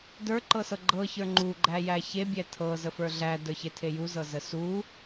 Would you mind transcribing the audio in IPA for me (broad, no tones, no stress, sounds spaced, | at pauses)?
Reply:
d ə˞ ǃ ɤ s ɤ ɡ͡ǃ ɤ ç ə˞ ŋ͡ǃ u ɡ͡ǃ æ j æ ç e bʲ æ tʰ ɤ z ə f ə˞ ɮ æ d ə˞ ç e tʰ e j u z ɤ z ə s u